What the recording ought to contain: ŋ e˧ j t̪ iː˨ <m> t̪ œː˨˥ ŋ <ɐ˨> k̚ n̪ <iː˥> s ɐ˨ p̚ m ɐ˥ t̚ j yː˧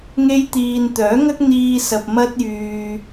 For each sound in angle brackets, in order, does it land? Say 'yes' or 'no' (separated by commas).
no, no, no